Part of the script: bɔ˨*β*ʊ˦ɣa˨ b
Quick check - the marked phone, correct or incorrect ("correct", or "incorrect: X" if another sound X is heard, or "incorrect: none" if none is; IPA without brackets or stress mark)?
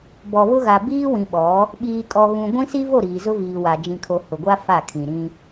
correct